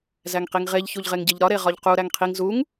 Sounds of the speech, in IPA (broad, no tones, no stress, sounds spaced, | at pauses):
z æ ŋ q i ŋ ʁ e ʎ ç u ʎ ʁ e ŋ ɟ e ʎ ɾ ɒ ɾ e ʁ ɒ ʎ q u ɾ æ ŋ qʰ i ŋ z u ŋ